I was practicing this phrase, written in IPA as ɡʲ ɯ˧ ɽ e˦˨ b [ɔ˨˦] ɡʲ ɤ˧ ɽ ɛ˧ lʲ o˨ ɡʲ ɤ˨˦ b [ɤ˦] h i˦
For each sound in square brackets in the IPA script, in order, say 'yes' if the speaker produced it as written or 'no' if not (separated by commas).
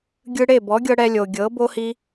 yes, no